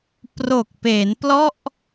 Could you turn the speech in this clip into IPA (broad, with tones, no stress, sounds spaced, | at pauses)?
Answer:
p r o˨˩ k̚ p e˩˦ n p l ɔ˥˩ ʔ